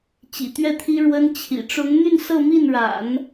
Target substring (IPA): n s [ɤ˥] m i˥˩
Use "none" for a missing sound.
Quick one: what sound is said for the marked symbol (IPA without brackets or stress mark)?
ɤ˥˧